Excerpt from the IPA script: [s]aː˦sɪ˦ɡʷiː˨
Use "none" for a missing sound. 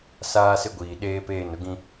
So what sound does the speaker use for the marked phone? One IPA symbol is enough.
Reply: s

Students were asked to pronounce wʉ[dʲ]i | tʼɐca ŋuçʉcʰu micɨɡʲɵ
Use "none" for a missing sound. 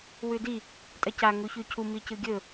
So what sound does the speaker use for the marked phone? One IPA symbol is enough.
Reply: d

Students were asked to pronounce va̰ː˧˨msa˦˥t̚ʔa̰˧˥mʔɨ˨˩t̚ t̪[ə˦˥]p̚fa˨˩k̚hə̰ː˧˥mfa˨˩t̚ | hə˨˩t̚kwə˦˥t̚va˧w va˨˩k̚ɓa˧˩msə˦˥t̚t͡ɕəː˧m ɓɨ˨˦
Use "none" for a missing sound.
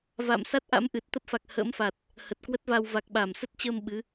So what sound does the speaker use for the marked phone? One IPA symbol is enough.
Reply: ə˦˥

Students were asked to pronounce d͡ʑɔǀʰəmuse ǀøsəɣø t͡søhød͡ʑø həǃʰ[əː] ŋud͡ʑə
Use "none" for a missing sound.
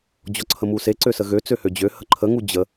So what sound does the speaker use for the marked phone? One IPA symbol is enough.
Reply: ə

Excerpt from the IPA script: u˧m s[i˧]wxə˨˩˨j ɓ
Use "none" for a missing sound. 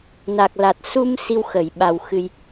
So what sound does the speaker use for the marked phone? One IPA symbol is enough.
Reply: i˧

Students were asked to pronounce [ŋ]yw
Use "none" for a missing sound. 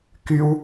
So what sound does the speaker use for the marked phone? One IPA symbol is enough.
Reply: k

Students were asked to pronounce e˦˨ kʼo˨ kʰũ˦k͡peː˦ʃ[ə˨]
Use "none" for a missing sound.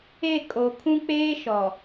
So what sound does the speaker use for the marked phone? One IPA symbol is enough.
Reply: ɔ˨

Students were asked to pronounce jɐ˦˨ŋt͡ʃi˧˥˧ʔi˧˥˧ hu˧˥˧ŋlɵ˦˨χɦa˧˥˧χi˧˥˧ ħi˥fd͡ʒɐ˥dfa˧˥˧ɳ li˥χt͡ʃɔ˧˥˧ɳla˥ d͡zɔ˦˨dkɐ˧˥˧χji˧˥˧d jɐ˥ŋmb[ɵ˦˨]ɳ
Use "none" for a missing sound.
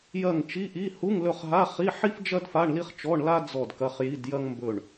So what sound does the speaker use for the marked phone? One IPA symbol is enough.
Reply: ɵ˦˨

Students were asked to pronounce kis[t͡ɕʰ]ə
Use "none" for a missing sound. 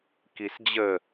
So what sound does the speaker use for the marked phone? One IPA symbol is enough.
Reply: d͡ʑ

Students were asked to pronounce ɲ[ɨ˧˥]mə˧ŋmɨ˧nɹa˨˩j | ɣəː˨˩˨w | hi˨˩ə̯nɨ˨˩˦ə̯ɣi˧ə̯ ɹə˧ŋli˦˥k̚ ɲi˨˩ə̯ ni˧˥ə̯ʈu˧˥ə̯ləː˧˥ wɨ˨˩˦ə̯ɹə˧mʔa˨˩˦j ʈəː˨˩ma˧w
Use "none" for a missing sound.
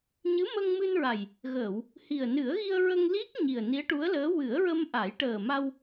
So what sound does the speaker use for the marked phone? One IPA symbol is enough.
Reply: ɨ˧˥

